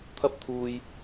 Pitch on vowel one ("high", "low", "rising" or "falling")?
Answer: high